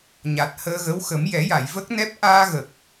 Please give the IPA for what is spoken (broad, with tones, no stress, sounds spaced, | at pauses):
ɲ a˨˩ t̚ h əː˧ ɣ ə˧˥ w x ə˨˩˦ m j ɛ˨˩˦ j a˨˩˨ j v ə˦˥ k̚ n ɛ˦˥ p̚ ʔ aː˧ ɣ ə˨˩ k̚